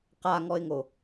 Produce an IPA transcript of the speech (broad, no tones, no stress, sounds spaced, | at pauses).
q a ŋ ɔ ɪ̯ ŋ o